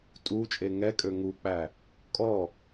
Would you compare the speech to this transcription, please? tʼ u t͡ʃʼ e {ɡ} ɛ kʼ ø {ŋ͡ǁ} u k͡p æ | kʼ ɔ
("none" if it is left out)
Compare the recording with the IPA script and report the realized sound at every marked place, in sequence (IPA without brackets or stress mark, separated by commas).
ŋ, ŋ